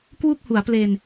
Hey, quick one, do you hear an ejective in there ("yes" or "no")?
no